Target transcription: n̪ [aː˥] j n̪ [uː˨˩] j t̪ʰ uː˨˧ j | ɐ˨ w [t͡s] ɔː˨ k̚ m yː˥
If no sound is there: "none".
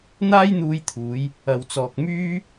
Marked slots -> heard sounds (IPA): aː˥, uː˧, t͡s

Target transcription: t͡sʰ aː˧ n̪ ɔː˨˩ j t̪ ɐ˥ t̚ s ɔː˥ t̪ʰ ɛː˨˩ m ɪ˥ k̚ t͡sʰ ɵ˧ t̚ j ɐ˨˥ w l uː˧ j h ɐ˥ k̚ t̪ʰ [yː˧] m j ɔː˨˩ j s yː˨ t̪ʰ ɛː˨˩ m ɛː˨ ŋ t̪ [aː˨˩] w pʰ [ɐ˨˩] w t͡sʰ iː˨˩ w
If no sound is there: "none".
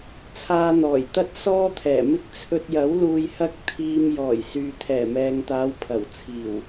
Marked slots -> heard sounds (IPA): iː˧, aː˨˧, ɐ˨˩

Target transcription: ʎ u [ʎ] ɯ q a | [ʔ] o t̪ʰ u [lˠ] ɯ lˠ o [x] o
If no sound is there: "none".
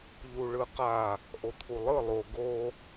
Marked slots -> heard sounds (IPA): ɭ, ʔ, lˠ, ɡ

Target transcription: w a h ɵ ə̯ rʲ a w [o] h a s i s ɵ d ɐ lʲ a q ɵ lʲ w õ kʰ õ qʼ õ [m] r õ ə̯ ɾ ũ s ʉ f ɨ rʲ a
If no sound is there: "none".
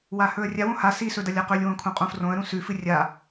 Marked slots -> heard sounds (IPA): õ, f

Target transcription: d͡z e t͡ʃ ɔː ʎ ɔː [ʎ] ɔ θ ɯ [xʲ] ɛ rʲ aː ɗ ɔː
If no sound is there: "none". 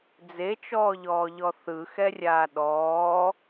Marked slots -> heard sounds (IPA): ʎ, x

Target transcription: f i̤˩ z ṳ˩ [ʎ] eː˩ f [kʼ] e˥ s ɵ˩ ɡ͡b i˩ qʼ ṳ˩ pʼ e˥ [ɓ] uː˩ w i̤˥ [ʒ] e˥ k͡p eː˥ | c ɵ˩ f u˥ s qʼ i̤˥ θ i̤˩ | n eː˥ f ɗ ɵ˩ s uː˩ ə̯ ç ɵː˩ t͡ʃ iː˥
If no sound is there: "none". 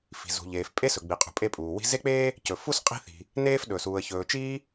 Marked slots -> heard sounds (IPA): ʎ, pʼ, pʼ, z

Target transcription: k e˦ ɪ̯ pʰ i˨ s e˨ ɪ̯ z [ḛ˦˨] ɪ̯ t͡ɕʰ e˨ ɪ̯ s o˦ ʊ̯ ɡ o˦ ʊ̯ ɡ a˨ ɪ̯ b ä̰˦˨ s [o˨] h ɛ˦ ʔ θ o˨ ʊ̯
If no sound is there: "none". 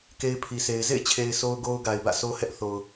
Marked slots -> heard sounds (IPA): ḛ˦˨, o˦

